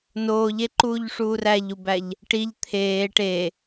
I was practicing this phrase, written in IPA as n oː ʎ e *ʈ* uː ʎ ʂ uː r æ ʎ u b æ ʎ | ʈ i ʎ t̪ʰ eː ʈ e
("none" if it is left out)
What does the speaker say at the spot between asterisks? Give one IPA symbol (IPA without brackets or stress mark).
ǃ